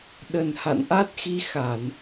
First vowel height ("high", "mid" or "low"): mid